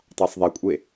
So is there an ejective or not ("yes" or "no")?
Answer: yes